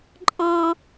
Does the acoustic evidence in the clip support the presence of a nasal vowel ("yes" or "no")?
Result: yes